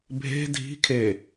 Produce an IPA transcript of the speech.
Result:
bʱ e̤ dʱ i̤ kʰ e

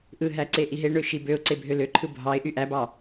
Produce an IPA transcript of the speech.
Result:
ʔ ɯ ɦ æ ǀ e ʔ i ɦ e ɳ ø ʃ i b ø ʊ̯ ǀ e bʱ ø l ø ǃʰ ɯ bʱ ɑ ɪ̯ ʔ y ʔ æ b ɑ

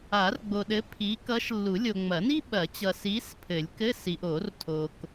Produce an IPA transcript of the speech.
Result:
a˨˩˦ r ɡ͡b o˨ ɗ ɘ˨˥ pʰ i˨˥ k ʌ˨˥ ʃ lː u˨˩˦ lʲ o˨ ŋ͡m ɐ˨˩˦ n i˥ ɓ ɐ˨˩˦ t͡ɕ ʌ˨ s i˨˥ s pʰ ɘ˨˩˦ lʲ k ɘ˧˥˧ s i˨ ʔ o˨˩˦ r tʰ o˨ k

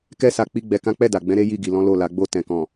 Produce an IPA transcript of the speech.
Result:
k ɛ˦ s a˧ k͡p i˦ ɡ͡b ɛ˧ k ã˦ k͡p ɛ˦˨ d a˨ ɡ͡b ɛ̃˨˦ ɾ e˦ j i˦˨ ɡ i˨ l ɔ̃˨˦ l o˦˨ l a˨˦ ɡ͡b o˦˨ t ɛ̃˨ k ɔ̃˨

